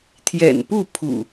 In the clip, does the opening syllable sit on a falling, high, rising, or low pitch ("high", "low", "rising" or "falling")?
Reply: low